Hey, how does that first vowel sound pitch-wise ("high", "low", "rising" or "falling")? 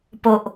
low